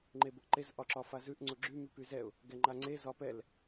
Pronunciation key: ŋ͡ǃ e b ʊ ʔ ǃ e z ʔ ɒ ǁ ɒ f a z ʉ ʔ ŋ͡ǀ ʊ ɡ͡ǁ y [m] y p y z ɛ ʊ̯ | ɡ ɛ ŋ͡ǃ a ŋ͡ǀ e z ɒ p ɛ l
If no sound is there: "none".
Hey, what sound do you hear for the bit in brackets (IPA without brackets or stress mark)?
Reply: m